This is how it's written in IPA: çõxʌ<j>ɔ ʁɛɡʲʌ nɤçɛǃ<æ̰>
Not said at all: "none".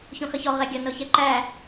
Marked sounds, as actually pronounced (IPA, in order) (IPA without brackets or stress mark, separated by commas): ç, æ